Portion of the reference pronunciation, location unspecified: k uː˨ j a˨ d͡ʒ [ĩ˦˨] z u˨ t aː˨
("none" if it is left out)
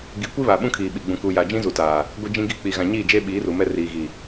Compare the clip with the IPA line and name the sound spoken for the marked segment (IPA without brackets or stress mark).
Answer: ĩ˦